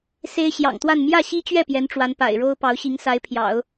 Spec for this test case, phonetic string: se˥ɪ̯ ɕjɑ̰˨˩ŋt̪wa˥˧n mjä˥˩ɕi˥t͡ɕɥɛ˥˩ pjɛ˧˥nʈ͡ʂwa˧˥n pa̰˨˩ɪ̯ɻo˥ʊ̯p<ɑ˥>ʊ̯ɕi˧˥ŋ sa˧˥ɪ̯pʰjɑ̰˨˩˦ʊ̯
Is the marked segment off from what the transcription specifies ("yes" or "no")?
yes